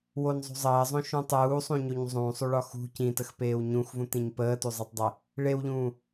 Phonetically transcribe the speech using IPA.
w o n zˤ ṳ zˤ əː zˤ õ ʃ ũ tˤ uː sˤ ũ ɲ o ɲ zˤ ũː sˤ u ɭ ɒ x ṳ c ĩ t ə x p eː w ɲ ũ x v ũ t ĩ ɲ p əː t u zˤ e tˤ dˤ e | ɭ e w ʎ ũː

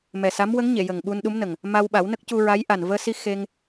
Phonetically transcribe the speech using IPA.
m ɛ˨˩ s a˧˥ m w ə˧˥ ŋ ɲ e˨˩˨ j ə˨˩ ŋ ɓ u˧ n ɗ u˧˥ m n ə˨˩ ŋ | m a˧ w ɓ a˨˩˦ w n ə˦˥ k̚ c u˧ ɹ a˧˥ j ʔ a˨˩ n v əː˧ s i˧ x e˧ ŋ

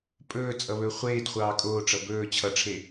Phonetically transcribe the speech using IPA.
pʼ ɵː t͡sʼ ʌ β ɵː χʷ eː d χʷ ɑː kʼ oː ʈ͡ʂ ʌ b ɵː t͡ɕʰ ʌ ʈ͡ʂʰ e

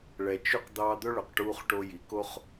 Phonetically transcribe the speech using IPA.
ɭ ɛ˨ t͡ʃ y˧ q d̪ ɑː˧ d̪ ɵ˦ ɭ ɵ˨ q ʈ uː˧ χ ʈ o˧ j i˨˦ k o˦ χ

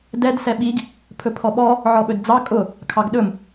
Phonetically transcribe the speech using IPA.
d ɛ d s ɛ ɓ i ɡ | pʰ ɵ pʰ ɔ ɓ ɔ | ʕ ɔ ɓ ɵ d d͡z ɑ kʼ ʊ | kʰ ɑ ɡ ɗ ɵ m

